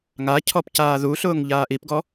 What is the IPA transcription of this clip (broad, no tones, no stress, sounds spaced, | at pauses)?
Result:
ŋ a cʰ ɔ p c aː ð u ɬ ʊː ŋ ʎ aː ʔ i p ɡ ɔ